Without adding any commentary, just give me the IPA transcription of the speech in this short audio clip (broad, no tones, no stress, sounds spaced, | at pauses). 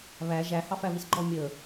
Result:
β æ ʒ æ h ɑ f æ β i s ɡ͡ǃ ɔ mʲ ə